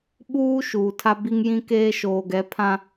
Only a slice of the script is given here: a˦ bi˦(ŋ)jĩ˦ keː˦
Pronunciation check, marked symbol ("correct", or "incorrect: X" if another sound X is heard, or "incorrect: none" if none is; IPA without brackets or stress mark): correct